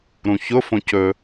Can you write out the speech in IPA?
ɾũçʊ fõcɵ

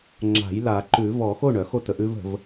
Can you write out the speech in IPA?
ŋ͡ǁa̤˨˩˦j la˨˩˦ǃʉ˨˩˦ vɔ˨˩˦xo˥˩ɳ œ˨˩˦xo˥˩tə˨˩˦ʔ ʉ˥˧və̤˨˩˦v

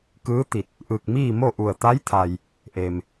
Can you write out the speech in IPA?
kɯː˧˥t̪i˧˩t̚ | ʔɯː˧˩k̚miː˥˨ mo˥˨ʔu˧˩ə̯ t̪a˧˥jt̪ʰa˩j | ʔe˩m

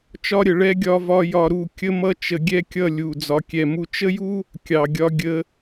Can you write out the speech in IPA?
t͡ʃɒ˦ɾʲə˨ɭɛ˦ ɡʲɒ˦vɒ˦ jɒ˧ɾu˦˨ kʲə˦mʌ˦ t͡ʃə˧ ɡʲɛ˦kʲʌ˦˨ lʲu˨ d͡zɒ˧kʲɛ˧mu˦ t͡ʃə˦ju˦ | kʲɑ˨ɡʲɒ˧ ɡʲə˧

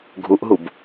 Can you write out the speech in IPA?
ɡʱuʔɦub

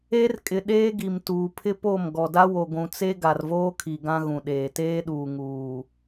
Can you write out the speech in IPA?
e˦r kʼɪ˨ ɗeː˦ɡi˨m tuː˨pʰɪ˦po˦˨m ɡɔ˨da˦wo˨ ɡʷũ˨t͡se˦ ɡa˨rvoː˦kʰi˨ ɡã˦ɣũ˨ɗeː˨ teː˦ɗuː˨ ŋuː˨

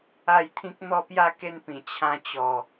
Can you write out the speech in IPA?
a˥˧jt̪ʰĩ˦k̚ n̪ɔ˥˧pja˥˧ ke˦npĩ˨˩ t͡ɕʰã˧t͡ɕɔ˨˩

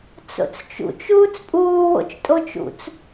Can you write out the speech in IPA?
t͡so̰t͡st͡ʃṵt͡ʃ uːt͡spʼuːwo̰t͡ʃtʼo t͡ʃṵt͡s

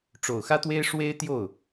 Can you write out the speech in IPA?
ʈ͡ʂo˨˩ʊ̯xä˥t̪we˥ɪ̯ ʂwe˥ɪ̯ t̪jo˥˩ʊ̯

